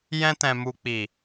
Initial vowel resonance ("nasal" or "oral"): nasal